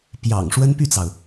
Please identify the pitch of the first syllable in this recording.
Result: low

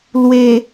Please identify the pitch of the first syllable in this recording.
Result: low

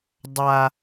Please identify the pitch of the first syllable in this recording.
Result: high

